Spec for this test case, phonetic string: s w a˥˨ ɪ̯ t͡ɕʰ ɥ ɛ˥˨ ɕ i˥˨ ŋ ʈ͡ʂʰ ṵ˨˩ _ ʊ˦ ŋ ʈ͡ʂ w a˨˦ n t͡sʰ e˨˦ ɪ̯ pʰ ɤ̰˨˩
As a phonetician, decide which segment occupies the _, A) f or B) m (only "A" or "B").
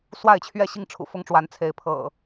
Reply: A